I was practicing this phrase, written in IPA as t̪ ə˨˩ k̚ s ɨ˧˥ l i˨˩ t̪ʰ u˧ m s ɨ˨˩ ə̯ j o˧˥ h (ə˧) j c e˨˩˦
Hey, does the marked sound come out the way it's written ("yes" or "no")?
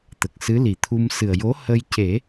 yes